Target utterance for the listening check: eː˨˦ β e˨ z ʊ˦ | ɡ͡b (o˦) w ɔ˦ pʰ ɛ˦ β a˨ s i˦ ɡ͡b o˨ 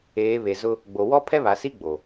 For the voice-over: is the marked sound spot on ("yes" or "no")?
no